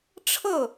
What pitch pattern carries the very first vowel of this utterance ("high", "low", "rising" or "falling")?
falling